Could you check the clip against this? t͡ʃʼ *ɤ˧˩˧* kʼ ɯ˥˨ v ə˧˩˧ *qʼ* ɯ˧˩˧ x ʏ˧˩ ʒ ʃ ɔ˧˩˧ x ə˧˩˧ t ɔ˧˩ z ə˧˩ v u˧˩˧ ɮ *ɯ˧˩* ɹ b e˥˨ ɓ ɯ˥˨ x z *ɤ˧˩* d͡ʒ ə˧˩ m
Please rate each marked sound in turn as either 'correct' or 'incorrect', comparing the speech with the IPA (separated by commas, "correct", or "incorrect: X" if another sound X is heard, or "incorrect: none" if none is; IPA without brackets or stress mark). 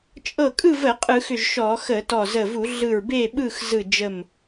incorrect: ɤ˧˩, correct, correct, incorrect: ɯ˧˩